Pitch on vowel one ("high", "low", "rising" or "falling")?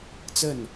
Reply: falling